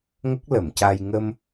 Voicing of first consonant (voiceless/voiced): voiced